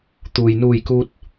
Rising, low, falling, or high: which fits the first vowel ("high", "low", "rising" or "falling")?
low